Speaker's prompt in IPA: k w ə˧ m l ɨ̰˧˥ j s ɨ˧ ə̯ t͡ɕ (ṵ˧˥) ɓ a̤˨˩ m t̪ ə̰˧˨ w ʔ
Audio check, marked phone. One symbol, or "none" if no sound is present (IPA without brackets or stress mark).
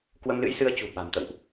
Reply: ṳ˨˩